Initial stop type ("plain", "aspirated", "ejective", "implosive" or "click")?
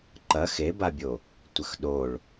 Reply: click